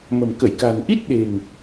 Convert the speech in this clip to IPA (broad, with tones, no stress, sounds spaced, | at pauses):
m ə̤˨˩ m k ə˧˩ j k a̤˨˩ n ʔ i˦˥ t̚ ɗ e̤˨˩ ŋ